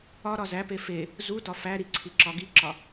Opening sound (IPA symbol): ɒ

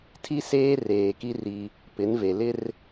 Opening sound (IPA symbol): tʰ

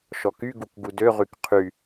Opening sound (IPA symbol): ʃ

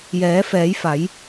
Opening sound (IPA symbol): j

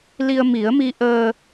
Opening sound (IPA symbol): l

